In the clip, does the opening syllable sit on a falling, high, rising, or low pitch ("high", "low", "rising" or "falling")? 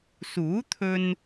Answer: rising